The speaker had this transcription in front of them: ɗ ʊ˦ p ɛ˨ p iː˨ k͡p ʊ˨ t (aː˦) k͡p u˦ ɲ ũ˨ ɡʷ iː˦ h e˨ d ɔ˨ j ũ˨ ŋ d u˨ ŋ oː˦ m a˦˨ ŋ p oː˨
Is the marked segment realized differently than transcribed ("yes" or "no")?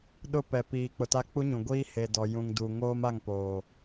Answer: yes